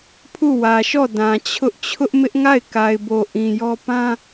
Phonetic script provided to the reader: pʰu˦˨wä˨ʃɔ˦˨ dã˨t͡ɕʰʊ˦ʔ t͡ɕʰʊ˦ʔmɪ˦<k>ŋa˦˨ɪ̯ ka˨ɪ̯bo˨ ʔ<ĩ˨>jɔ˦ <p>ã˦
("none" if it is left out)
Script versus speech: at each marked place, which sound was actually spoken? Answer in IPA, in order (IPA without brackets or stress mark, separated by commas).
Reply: ʔ, ĩ˨, p